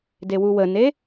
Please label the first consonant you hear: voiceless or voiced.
voiced